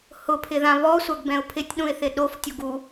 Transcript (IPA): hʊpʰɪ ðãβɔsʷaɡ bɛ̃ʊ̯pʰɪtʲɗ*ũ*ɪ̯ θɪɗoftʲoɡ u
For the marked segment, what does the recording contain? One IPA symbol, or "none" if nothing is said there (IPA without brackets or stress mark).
ũ